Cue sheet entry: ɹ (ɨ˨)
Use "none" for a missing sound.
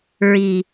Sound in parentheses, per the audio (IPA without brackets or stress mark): i˨